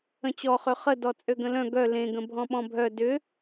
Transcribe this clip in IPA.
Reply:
ə̃t͡ɕɔχø χədɔ t͡sʼøɡə̃lœ̃ ɡœ lẽɡə̃ bʱɔ̃ɓɔ̃bʱœ dʏ

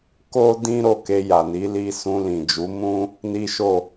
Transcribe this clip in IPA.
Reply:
ko˦dĩ˦ ɾo˦˨ke˧ja˨ni˨˦ li˧sũ˧lĩ˨d͡ʒu˨˦ mũ˦ | ni˦ʃo˦˨

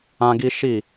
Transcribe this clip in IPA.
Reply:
ã˦ɡi˦ ʃi˦˨

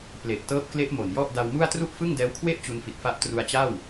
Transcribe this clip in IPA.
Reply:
ple˨˩ʔ tɤː˦˥p̚kle˦˥ʔ mo˨˩njɔ˥˩ʔ da˧wmu˥˩a̯ tru˥˩ʔfɯ˥˩ŋdɛː˦˥wkʰwe˥˩ʔ t͡ɕu˧nfi˨˩t̚fa˦˥ʔ tru˧a̯t͡ɕa˥˩w

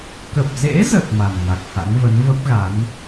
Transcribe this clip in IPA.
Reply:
kə˨˩p̚zḛ˧˥zə˨˩t̚ ma˨˩nŋa˨˩k̚ha̰˧˥ŋvə˨˦n və˦˥p̚ɣa˨˦n

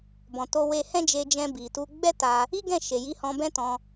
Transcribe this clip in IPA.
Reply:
bɔ̃˨to˧we˧ hɛ̃˦d͡ʒe˧d͡ʒɛ̃˧ bi˨tu˧ ɡ͡bɛ˦ ta˧ | i˦ɡɛ̃˦˨ ʃe˨ji˧hɔ̃˧ bɛ̃˦tɔ̃˧

